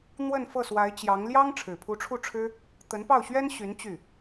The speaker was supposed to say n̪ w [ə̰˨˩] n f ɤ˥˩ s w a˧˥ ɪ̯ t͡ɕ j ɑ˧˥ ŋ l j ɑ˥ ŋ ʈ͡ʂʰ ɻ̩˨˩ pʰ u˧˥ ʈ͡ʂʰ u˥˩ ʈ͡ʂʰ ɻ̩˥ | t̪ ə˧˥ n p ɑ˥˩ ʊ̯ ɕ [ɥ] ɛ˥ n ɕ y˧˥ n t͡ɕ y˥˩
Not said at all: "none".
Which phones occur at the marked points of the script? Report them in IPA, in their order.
ə˥˧, ɥ

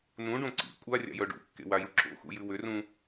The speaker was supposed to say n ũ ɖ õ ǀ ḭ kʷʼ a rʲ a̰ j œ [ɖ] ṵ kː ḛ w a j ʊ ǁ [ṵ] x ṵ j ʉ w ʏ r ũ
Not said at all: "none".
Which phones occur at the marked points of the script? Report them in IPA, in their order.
ɖ, o̰

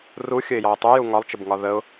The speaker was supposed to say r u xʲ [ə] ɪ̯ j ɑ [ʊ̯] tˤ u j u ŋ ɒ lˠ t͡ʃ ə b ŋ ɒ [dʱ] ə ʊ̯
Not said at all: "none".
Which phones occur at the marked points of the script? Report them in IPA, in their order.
ə, ʊ̯, ð

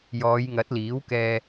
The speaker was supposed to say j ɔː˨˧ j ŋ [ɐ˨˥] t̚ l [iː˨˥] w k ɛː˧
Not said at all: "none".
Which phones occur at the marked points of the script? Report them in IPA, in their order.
ɐ˨˥, iː˨˥

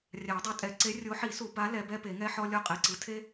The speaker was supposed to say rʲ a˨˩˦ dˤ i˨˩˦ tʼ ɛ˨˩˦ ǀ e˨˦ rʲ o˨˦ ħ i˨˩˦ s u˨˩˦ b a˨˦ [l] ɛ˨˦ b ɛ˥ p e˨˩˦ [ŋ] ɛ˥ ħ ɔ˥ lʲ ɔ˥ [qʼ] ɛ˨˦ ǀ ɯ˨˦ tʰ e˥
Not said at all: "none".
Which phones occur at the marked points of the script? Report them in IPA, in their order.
l, ŋ, qʼ

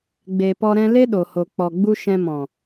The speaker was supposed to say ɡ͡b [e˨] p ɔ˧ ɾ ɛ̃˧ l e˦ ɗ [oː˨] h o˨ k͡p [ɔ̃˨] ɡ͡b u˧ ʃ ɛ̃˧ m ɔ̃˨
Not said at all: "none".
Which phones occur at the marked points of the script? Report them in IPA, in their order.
e˨, o˨, ɔ˨

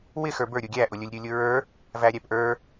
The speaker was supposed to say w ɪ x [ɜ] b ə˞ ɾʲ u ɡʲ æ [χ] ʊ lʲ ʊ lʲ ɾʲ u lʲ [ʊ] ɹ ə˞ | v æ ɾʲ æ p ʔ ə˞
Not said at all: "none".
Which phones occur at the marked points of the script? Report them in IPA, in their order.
ə˞, ʔ, ʊ

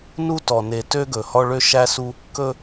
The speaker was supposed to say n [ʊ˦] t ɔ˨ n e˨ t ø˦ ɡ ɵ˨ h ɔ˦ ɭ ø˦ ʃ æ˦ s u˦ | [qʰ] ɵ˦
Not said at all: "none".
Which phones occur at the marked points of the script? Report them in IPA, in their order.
u˦, k

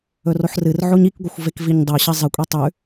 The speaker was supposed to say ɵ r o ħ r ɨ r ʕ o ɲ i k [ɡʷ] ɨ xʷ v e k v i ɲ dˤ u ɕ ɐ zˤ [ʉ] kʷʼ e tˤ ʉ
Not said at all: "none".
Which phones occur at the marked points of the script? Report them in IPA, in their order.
ɡʷ, ɨ

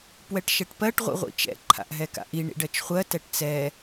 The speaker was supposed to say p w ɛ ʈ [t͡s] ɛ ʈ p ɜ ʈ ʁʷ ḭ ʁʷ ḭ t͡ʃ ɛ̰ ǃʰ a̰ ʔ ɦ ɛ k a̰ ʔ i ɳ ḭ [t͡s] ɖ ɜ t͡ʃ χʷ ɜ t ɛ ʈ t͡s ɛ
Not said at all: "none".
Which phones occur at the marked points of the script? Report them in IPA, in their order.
ʃ, none

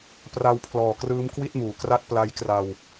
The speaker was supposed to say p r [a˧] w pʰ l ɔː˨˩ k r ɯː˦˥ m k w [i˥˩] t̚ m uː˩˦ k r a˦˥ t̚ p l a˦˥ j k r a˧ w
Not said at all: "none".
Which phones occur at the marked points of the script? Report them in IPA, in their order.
a˧, i˥˩

